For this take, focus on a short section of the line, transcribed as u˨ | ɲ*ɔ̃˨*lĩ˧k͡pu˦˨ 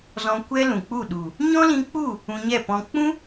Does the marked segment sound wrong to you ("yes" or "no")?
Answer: yes